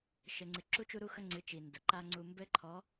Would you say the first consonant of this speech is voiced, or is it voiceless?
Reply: voiceless